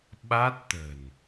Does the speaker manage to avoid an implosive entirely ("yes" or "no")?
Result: no